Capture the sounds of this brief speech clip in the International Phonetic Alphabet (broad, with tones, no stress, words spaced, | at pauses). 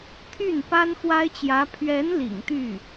t̪ʰy˥˩npa˥n xwa˥ɪ̯t͡ɕjä˧˥ pʰɥɛ˧˥n lḭ˨˩ŋt̪y˥˩